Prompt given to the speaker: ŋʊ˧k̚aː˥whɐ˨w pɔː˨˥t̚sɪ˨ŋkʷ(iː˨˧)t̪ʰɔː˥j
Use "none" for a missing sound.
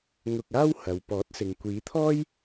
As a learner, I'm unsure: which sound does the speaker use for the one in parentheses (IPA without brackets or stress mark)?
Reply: iː˨˧